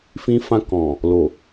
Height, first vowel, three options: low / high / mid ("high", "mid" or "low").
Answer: high